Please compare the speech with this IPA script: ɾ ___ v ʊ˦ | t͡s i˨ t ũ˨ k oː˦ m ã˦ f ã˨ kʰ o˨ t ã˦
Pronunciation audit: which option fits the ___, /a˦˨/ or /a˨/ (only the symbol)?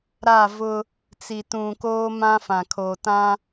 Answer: a˦˨